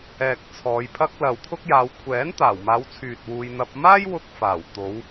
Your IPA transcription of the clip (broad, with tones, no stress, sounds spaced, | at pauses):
ɛː˨ k̚ t͡sʰ ɔː˨˧ j pʰ ɐ˧ k̚ l ɐ˨ w t̪ʰ ʊ˥ k̚ j aː˨˧ w kʷʰ ɛː˨˥ n t̪ aː˨˩ w m aː˨˧ w t͡sʰ yː˨ t̚ w uː˧ j n̪ ɐ˧ p̚ m aː˥ j w ʊ˥ k̚ f aː˨˩ w t̪ o˨˧ w